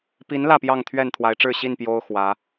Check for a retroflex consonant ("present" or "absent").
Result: present